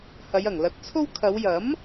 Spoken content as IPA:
h ɐ˨˧ j ɐ˨˩ ŋ l ɐ˨˥ t̚ t͡sʰ o˥ w kʰ ɐ˨˧ w j ɐ˨˥ m

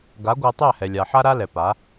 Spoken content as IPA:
ɡ a˨˦ ɡʷ æ˧ tˤ æ˦˨ h ɛ˨ lʲ a˨ ħ a˦ ɾ a˦ l ɛ˨ p a˨˦

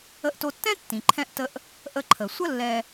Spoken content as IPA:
ə˧ ʔ t o˧ tː ɛ̃˥ tː ĩ˩ ǃʰ ɛ̃˧ ʔ t ə˧ ʔ | ʔ ə˧ ǃʰ ə˩ sʷ ə˥ lː ɛ˧

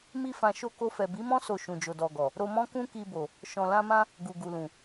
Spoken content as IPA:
m i˦ f ã˧ ʃ o˧ k o˧ f ɛ˨ b i˨˦ m ɔ̃˦ s o˧ ʃ ũ˨ d͡ʒ o˨ d ɔ˨ ɡ ɔ˨ | ɾ o˧ m ɔ̃˦ k ũ˦ k i˧ b o˨ | ʃ ɔ̃˨ l ã˧ m ã˦ | ɡ u˨ ɡ u˨ l ũ˨

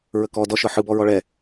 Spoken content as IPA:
ɹ ə k ɔ d ɔ ʃ ɤ ħ ɯ b ɔ ɹ ɔ ɭ ɛ

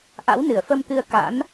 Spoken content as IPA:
ʔ a̰˧˥ w n ɨ˧˩ ə̯ f ə˧ m t̪ ɨ˧ ə̯ k a̰˧˥ n

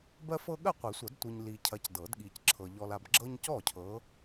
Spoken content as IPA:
b ɜ˦ f ɤ˦ ɠ ɜ˥˩ qʷ i˨˩˦ sʷ ɐ˨˩˦ d tʷ i˨ ɲ l i˨ cʰ ɐ˨˦ c d ɤ˨˩˦ d ɠ i˨ c ǁʰ ɤ˨ ʎ ɔ˨ l a˨ b ɡ͡ǁ ɤ˦ ɲ c ɔ˥˩ cʰ ɤ˨˦

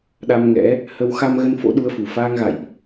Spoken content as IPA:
ɗ a˧ m ŋ ɛ̰˧˥ | h ə˧ w x a˧ m ɣ ə˧ n f o̰˧˥ ɗ u˨˦ ə̯ f u˨˩ f aː˧ ŋ ɣ a̰˧˨ j ʔ

